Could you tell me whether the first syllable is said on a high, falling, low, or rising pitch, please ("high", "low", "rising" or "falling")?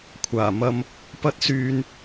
low